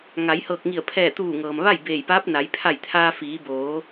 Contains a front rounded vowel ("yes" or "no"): no